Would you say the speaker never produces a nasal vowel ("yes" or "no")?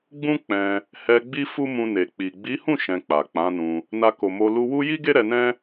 no